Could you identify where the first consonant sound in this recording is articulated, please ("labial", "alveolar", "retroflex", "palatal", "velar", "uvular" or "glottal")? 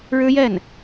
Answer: retroflex